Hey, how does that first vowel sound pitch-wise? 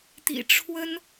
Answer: low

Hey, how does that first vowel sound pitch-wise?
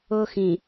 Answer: high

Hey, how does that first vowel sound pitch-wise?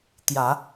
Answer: low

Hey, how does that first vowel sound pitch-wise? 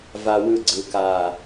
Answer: high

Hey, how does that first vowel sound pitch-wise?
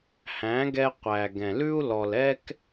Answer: rising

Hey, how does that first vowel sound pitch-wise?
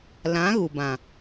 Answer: rising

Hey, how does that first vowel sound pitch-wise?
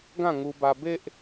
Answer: falling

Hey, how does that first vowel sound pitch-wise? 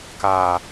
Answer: low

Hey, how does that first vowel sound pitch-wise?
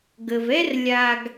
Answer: low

